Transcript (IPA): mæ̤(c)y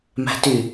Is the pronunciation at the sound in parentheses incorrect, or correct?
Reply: incorrect